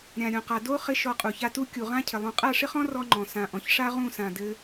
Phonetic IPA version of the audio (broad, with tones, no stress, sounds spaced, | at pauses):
ɾʲ ã˨ ɾʲ õ˨ q a˨ d o˦ χ ɪ˧ ʃ ɔ˧ qʼ u˨ ç a˦ t u˦ kʲ u˨ ʁ ã˦ cʰ ɪ˨ lˠ ũ˨ qʼ a˦˨ ʂ ɪ˦ χ ɔ̃˦ r ɔ˦ ŋ͡ǃ ɔ̃˨ s ã˨ ʔ ɔ̃˨ ç ʂ a˦ ʁ ũ˦˨ s ã˨ d ɘ˧